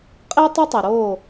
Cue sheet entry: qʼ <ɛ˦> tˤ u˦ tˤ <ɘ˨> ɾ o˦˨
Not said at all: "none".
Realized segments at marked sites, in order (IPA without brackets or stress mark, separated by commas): e˦, e˨